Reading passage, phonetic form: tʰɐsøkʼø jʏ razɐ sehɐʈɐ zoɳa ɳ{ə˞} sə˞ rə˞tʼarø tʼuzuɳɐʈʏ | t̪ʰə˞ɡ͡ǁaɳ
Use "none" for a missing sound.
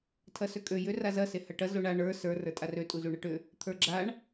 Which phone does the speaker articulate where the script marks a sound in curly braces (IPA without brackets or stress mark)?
ə˞